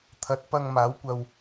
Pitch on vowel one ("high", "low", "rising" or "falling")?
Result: rising